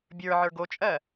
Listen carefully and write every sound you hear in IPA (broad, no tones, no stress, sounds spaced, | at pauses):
bʲ ə˞ ʕ ə˞ ɡ o t͡ʃʼ ɜ